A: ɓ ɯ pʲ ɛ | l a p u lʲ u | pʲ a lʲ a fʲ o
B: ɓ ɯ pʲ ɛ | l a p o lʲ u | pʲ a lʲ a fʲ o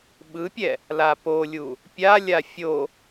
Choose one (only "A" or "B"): B